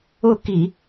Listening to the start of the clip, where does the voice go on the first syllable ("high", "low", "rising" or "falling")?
falling